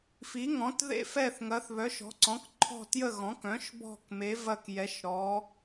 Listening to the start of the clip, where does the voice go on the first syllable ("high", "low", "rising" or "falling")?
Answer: rising